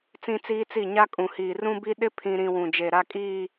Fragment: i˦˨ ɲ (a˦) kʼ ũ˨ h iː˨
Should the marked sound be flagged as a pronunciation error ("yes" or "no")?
no